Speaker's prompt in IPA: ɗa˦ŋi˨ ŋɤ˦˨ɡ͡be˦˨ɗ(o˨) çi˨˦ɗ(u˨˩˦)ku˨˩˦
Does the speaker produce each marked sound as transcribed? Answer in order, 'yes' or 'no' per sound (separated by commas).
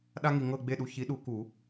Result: no, yes